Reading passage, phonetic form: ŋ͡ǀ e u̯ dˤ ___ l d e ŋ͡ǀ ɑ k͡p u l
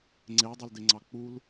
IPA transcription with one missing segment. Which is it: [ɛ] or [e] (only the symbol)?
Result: e